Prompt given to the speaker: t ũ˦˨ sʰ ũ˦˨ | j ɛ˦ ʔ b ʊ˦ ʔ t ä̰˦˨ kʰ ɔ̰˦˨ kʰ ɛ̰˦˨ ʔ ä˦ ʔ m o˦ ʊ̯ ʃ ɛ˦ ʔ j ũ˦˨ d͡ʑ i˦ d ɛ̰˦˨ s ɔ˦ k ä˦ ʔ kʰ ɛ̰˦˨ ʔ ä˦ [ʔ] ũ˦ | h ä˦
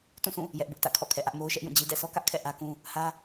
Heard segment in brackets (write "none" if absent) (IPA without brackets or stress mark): k